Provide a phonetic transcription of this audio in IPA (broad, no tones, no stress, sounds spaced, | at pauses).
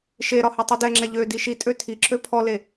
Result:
ʃ e ɾ ɒ h ɛ tˤ u d ɛ ŋ͡ǁ ɛ ʎ ø d i ʃ i tʼ ø tʰ i ǁ ø pʰ ɔ l e